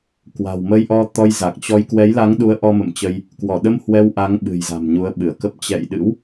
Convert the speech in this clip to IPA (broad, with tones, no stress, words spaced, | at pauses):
kwa̤˨˩wmə˧jʔɔ˧ t̪ɔ˧jza˨˩k̚ t͡ɕɔ˧j kwɛ˨˦jla˨˦ŋɗu˨˦ə̯ ʔɔ˧mə̰˧˨mt͡ɕə˧j | kwɔ˧˩ɗə˧m hwɛ˧wʔa˨˦ŋ ɓɨ̤˨˩jza̤˨˩m ɲu˨˦ə̯ɓɨ˧˩ə̯kə˦˥p̚ t͡ɕɛ̰˧˨jɗɨ̰˧˥w